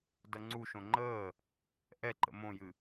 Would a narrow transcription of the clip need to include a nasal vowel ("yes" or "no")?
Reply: yes